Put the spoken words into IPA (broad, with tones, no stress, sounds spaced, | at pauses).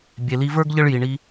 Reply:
bʲ e˨ l i˧ v ə˞˦ ɡ ʎ ə˦ ɭ j i˨ ɳ i˧